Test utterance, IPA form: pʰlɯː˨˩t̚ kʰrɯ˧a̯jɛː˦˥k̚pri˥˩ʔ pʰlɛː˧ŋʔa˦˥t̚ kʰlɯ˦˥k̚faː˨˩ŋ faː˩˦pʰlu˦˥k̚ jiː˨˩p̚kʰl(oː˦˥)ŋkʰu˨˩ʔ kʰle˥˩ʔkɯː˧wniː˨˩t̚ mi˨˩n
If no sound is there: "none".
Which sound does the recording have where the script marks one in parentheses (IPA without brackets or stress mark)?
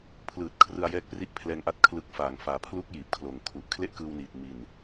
oː˨˩